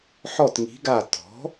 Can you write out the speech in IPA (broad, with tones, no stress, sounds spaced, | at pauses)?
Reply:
ħ ɔ˧˩ t ŋ i̤˩˧ ɡ a˧˩ t ɔ̤˩˥